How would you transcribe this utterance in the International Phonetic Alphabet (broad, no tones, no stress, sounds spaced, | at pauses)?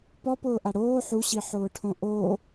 p ɔ p ʊː ʔ a ɽ oː ħ u ɕ i ħ ʊː ʈʰ õ ʔ o